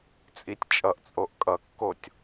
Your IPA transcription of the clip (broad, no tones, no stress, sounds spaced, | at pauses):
t͡sʼ i tʲ t͡ʃʼ ʌ ʔ t͡sʼ o ʔ kʼ ʌ kː o tʲ